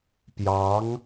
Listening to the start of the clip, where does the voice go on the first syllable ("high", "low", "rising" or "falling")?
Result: rising